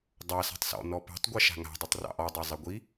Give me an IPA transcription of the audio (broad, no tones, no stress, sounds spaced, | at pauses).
dˤ ɑ s a̤ tˤ s ɔ̰ n ɔ p a̤ tˤ ɡʷ ɛ ʃ a̤ ŋ a̤ dˤ ʉ tˤ r ɑ̰ ʔ ɔ dˤ o zˤ ɛ ɡʷ i